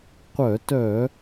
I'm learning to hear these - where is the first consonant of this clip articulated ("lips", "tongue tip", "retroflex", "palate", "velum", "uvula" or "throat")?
uvula